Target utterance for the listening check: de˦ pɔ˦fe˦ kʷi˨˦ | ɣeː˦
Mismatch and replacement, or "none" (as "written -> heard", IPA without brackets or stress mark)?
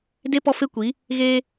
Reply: none